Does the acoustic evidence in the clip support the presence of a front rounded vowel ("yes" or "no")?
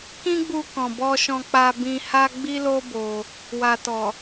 no